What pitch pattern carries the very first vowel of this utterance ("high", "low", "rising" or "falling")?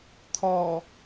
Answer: low